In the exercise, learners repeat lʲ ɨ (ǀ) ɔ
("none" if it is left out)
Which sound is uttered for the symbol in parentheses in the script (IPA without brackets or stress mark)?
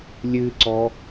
ǀ